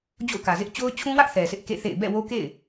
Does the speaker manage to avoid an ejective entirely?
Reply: yes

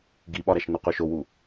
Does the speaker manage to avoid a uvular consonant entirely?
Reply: no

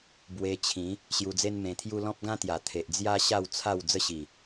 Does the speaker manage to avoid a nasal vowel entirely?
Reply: no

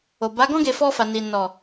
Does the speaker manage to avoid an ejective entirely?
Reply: yes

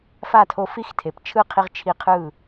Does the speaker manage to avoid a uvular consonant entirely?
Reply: no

